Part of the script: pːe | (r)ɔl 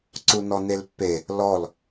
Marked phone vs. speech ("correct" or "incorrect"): incorrect